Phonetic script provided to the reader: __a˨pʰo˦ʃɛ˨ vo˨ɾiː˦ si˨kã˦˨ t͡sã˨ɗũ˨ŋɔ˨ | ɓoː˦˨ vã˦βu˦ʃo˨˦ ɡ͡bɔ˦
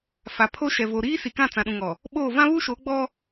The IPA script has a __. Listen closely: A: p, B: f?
B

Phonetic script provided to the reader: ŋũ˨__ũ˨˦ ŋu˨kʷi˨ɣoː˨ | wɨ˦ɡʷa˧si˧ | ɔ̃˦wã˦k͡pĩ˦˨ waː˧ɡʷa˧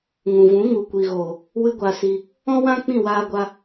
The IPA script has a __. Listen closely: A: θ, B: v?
B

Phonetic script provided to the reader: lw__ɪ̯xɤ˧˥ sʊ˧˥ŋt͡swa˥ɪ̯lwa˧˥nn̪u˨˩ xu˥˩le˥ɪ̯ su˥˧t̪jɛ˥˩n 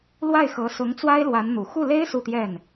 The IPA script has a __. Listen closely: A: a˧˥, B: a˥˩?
B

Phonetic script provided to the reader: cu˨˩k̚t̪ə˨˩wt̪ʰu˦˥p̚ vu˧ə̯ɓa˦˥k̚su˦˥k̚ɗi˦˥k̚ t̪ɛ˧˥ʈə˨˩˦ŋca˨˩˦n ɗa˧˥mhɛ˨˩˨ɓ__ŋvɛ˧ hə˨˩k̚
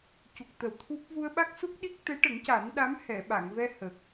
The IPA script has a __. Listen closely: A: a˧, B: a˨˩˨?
B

